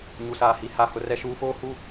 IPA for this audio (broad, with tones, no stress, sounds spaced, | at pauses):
ɲ u˨ s aː˨ h i˨˦ h a˨ h ʊ˦ r ɛ˦ ʃ uː˦ f oː˦ h u˦